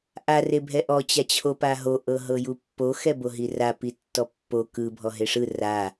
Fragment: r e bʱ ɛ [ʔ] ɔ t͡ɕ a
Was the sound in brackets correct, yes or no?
yes